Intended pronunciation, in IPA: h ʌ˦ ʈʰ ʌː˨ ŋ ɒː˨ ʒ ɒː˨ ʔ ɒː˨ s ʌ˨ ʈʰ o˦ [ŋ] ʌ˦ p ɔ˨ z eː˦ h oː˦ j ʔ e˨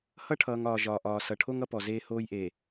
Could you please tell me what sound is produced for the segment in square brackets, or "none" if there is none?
ŋ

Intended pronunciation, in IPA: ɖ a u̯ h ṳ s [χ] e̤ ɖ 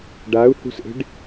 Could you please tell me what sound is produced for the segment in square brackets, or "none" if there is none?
ʔ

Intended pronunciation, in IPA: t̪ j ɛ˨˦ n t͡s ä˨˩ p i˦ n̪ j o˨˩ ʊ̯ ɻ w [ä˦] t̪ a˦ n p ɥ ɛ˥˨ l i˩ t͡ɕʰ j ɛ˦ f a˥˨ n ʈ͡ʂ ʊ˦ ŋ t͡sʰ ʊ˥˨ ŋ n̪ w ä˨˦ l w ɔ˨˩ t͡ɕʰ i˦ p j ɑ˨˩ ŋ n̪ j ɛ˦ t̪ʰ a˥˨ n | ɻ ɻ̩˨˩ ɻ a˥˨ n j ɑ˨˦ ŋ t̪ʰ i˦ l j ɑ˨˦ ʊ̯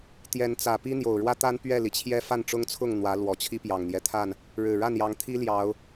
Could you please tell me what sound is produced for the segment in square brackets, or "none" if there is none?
ä˦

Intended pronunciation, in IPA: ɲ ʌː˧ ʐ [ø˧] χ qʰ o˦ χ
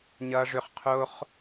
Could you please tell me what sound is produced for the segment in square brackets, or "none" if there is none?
ø˧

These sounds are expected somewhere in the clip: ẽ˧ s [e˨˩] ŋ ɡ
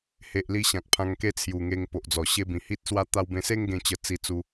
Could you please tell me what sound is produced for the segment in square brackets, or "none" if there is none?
e˦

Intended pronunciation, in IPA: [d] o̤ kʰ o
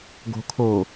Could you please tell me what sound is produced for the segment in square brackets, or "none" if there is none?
ɡ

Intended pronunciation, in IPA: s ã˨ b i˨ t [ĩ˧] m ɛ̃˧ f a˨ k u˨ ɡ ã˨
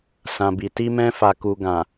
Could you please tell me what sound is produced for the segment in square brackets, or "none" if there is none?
i˧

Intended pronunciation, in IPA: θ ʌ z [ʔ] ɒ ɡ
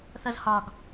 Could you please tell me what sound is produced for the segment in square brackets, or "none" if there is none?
h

